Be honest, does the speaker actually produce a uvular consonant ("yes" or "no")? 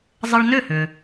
no